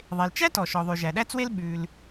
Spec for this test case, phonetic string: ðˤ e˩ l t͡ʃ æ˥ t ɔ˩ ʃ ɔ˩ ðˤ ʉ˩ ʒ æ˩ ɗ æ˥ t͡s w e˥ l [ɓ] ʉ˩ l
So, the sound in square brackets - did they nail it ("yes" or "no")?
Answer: yes